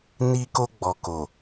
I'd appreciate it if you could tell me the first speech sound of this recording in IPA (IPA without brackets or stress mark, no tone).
n